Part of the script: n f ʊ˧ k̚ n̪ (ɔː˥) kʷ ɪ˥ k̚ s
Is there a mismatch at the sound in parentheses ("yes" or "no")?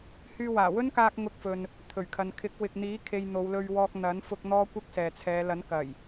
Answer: no